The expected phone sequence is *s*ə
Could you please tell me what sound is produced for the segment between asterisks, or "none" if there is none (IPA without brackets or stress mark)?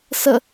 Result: s